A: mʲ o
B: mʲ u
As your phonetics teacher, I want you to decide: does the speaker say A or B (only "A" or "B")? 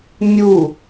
B